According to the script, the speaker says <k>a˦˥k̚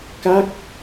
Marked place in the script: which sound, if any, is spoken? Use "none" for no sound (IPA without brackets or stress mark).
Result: k